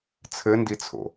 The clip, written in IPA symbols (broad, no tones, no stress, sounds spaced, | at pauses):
t͡sʰ ɘ n d i t͡sʰ o̰